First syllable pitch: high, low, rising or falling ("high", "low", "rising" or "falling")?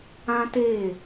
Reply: high